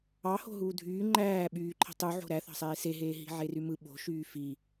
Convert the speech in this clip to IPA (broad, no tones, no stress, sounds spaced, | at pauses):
ɑ h o̤ ɦ uː dʱ yː ŋ͡ǃ æː ɓ yː ǃʰ i̤ tˤ u ʕ o̤ ɾ æ θ ɑ̤ sˤ eː s e ɦ eː ɦ i̤ ʕ e r y m ɯ ɓ o̤ ʃ yː f i